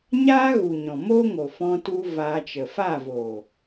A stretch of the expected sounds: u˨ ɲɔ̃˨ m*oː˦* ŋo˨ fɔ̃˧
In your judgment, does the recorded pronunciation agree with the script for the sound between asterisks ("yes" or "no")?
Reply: yes